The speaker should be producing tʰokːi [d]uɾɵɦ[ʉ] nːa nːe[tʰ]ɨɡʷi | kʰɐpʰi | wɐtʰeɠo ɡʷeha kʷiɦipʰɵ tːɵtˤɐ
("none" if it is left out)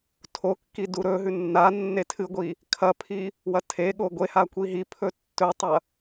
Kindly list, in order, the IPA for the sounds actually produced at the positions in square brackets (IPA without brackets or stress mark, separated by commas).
d, ʉ, tʰ